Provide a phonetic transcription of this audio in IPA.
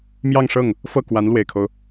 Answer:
m j ɑ˥˧ ŋ ʂ ɤ˥˩ ŋ | f ɤ˥˩ k w a˧˥ n l w e˨˩ ɪ̯ kʰ o˦ ʊ̯

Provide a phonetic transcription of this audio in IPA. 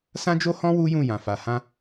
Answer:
s ã˦ d͡ʒ o˦ h ɔ̃˦ w u˦ j ũ˦˨ j ã˨ f a˨ h ã˧

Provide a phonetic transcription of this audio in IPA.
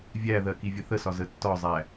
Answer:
vʲ æ ð ɜ k i vʲ ə θ ə s ɒ z ə tː ɒ zˤ æ

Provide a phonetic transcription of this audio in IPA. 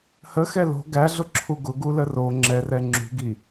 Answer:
h ə x ɛ l o̤ ɡ æ ɮ ʊ ǁʰ u ɡ ʊ ɡ u l ə r o ŋ͡ǁ ɛ r ɛ ŋ͡ǁ ṳ ɡ i

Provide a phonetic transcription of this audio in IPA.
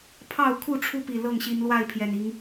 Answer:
pʰ ɑ˥˨ ʊ̯ kʰ u˥˨ ʈ͡ʂʰ u˦ p i˨˩ l ɤ˥˨ ŋ ɕ i˨˦ n l w a˥˨ ɪ̯ pʰ j ɛ˨˩ n i˨˦ ŋ

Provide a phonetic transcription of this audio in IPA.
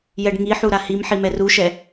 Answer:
j ɛ ɖ ŋ i ħ u ɾ a h i m ħ i m ɛ r u ʃ ɛ

